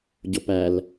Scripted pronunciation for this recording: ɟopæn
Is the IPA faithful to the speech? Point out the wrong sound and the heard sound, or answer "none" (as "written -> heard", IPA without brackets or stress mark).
n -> l